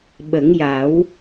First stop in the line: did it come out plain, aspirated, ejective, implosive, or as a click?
implosive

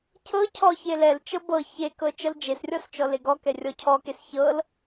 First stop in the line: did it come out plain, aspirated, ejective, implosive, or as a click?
aspirated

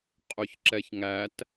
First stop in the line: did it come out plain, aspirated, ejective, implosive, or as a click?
ejective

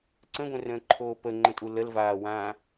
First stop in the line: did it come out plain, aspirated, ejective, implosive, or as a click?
click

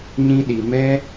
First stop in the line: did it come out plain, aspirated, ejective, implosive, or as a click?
implosive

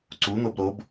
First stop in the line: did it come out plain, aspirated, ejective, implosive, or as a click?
click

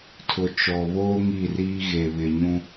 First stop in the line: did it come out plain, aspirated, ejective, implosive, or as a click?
aspirated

